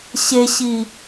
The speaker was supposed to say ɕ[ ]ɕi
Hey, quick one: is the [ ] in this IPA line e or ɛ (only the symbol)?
e